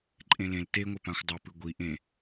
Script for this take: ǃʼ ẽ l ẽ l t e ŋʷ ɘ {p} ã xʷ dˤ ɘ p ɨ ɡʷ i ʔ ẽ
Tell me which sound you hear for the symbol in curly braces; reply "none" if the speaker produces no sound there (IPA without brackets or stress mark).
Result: p